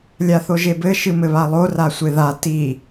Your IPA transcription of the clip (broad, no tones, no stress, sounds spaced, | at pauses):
lʲ a θ o ʒ e b ɘ ʃ ɨ m ɘ β a lˠ o r a sʷ e ð a t i